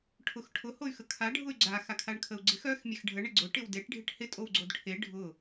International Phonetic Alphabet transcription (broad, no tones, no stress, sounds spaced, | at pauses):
ʈʰ ʊ x ʈʰ ʊ h o y̯ x ə kʰ a ɖʱ ʊ y̯ ɡ͡ǀ a x a kʰ a ɳ kʰ ə u̯ ɡ͡ǀ ɪ x œ x mʲ e x ɖʱ ə ɳ ɪ ɡ͡ǀ ʊ ʈ ɪ w d e ʈ ɖʱ ɪ ʈ h ɪ tʼ o w ɡ͡ǀ o d ʈʰ e ɖʱ ʊ